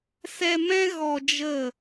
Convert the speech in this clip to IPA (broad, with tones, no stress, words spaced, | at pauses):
sɛ˧mɛ̃˦ ɣɔ˧d͡ʒə˦˨